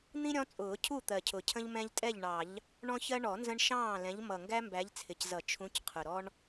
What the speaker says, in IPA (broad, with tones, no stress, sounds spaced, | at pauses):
n̪ ĩ˦ ɾʲ ɔ̃˨˦ t͡sʼ ʊː˨˩˦ cʰ u˥˨ t̪ ɜ˨˩ cʰ ʊ˨˩ cʰ ə̃˦ ʎ m ɛ̃˦ ʎ tʼ ɛ˥˨ ʎ ɳ ɑ˨˩˦ ʎ | ɳ ɔ̃˦ ç ɜ˦ ɳ ɔ˨˩˦ n z ə̃˦ ɳ ʃ ɑ̃ː˥˨ l ɛ̃˨˦ ʎ m ʌ˨˩ ŋ ɡ æ˦ m b æ˨˦ ʎ t͡sʰ ɪ˨˩ c z ʌ˨˩˦ t͡ʃʰ ũ˨˦ c qʰ ʊ˨˩ ɾ ɔ˦ ɳ